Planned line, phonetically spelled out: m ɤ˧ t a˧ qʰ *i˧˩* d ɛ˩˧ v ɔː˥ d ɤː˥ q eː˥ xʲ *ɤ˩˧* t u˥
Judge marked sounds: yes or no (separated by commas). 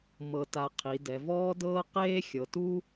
no, yes